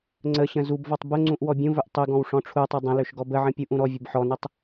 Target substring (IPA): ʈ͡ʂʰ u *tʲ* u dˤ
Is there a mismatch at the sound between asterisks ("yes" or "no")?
yes